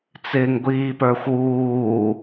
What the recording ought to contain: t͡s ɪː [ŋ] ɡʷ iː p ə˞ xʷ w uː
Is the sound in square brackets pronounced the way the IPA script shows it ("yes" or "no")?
yes